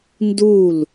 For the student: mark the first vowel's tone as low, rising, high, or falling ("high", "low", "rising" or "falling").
falling